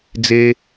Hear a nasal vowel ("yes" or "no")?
no